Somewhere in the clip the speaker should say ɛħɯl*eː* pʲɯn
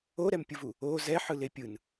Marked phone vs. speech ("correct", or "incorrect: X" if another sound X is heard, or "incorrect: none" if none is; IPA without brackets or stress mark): incorrect: e